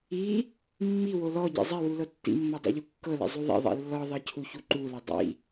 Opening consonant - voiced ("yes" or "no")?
yes